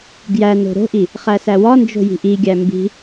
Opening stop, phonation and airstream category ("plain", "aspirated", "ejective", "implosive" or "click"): plain